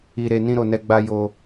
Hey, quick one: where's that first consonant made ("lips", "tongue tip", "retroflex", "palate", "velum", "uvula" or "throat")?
tongue tip